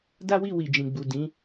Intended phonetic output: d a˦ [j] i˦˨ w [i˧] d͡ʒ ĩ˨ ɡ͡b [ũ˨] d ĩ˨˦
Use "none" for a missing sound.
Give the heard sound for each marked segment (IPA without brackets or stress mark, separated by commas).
w, i˨, u˨